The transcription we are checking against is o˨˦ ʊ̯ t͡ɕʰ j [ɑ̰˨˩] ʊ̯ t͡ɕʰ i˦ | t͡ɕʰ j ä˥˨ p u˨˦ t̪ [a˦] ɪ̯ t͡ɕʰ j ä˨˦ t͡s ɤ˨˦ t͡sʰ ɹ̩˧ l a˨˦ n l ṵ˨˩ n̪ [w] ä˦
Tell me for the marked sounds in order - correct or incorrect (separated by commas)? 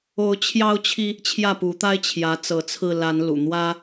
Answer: incorrect, correct, correct